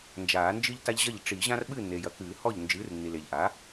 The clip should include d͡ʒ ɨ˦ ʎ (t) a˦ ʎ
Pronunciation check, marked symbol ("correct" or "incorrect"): correct